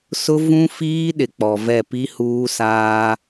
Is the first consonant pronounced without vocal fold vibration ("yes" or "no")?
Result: yes